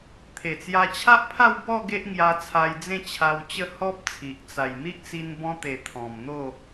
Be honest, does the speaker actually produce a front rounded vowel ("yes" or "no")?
no